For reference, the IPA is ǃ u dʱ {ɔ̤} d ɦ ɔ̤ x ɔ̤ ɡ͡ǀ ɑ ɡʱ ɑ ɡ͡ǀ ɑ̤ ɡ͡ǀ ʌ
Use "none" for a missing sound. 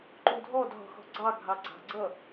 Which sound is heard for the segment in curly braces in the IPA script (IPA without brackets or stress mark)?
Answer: ɔ